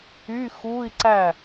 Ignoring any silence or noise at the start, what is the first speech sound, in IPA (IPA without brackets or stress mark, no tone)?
y